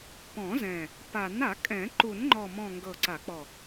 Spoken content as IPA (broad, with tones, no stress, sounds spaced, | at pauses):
p ɔ̃˨˩˦ z ɛ̃˨˩ | p a˨˩˦ n a˨˩˦ kʼ ɛ̃˨˩˦ ǃ u˨˩˦ n ŋ͡ǃ ɔ˨˩ m ɔ̃˨˩ ŋ ɡ ɤ˨˩ ǀ a˨˩˦ k͡p ɔ˨˩